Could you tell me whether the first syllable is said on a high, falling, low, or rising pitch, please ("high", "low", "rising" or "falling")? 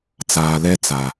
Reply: low